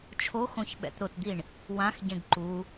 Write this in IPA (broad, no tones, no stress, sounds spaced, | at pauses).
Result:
t͡ʃʰ o x õ ç ɓ ɛ̰ t ɾ ʊ t d̪ i ɳ | w ã x ɟ ẽ ɡ ǃ u